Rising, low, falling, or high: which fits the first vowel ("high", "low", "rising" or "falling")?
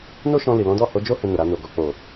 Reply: high